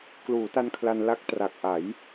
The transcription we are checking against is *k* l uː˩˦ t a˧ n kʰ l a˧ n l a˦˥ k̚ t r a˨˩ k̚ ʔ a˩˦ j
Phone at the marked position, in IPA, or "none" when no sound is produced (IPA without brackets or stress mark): k